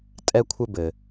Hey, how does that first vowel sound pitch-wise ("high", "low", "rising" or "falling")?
high